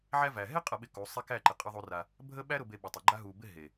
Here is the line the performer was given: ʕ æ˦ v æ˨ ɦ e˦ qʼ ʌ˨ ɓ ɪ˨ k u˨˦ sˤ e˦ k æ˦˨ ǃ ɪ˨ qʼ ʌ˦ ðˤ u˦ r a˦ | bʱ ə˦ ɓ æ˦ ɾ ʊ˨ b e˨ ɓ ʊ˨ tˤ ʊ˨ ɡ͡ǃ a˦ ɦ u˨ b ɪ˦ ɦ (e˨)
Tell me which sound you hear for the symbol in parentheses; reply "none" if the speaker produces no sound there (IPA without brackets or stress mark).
e˨